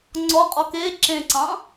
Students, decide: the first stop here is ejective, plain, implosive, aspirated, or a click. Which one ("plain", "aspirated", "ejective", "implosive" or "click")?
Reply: click